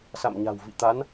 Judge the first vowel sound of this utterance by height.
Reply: low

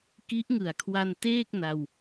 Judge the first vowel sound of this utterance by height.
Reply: high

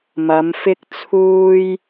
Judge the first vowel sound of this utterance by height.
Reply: low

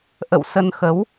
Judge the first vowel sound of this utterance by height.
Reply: mid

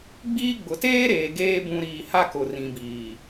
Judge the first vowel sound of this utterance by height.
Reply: high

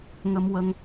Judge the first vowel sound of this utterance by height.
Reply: mid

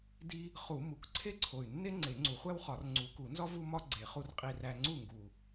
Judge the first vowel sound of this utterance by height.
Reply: high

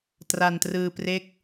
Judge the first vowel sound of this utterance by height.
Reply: low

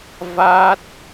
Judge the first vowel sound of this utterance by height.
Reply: low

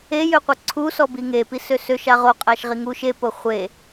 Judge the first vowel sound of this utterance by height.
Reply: mid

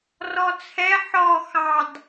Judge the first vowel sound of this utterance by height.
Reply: mid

